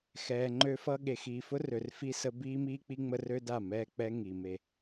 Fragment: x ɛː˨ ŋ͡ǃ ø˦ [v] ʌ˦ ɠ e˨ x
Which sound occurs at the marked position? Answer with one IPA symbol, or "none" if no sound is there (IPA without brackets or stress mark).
f